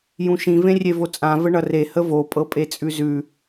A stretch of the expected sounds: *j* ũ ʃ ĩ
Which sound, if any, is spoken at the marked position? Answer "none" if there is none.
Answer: j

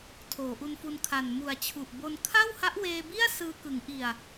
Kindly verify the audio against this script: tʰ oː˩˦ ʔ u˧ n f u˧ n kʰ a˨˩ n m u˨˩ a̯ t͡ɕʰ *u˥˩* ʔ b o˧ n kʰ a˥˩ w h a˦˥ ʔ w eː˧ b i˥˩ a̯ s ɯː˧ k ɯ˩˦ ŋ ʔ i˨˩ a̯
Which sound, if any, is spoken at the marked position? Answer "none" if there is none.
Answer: u˨˩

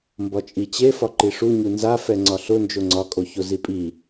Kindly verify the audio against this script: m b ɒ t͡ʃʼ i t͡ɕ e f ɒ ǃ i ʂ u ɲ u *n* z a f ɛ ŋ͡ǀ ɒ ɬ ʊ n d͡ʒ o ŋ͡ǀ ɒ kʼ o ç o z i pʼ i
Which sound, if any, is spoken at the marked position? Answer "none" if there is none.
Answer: n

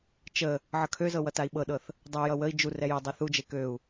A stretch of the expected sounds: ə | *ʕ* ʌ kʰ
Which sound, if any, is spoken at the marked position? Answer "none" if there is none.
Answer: ʕ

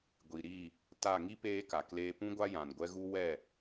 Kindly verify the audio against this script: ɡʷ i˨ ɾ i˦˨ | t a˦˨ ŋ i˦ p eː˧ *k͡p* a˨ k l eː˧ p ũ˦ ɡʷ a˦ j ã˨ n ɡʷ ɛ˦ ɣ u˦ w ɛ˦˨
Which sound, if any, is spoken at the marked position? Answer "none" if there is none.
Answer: k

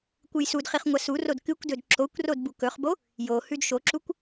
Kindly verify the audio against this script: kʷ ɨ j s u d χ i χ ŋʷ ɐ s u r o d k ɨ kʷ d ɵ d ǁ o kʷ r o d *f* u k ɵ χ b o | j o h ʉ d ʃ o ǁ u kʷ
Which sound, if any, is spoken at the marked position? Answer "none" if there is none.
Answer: b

